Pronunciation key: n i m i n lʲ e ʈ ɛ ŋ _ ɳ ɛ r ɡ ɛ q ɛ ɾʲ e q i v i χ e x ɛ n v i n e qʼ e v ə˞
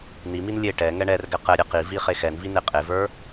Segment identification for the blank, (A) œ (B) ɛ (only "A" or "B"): B